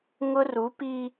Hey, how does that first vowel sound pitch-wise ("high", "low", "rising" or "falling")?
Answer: high